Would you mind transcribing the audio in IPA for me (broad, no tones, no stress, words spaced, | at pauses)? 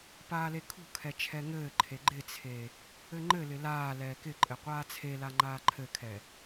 paːlekʰṳkʰɛ t͡ʃʰɛŋɘːǃʰe ɡ͡ǃɪt͡sʰe | ɘŋ͡ǃɘlɪ laː lɛːkɪǃʼɘ qʷaːt͡sʰela ŋ͡ǃaːǃʰɘkʰɛ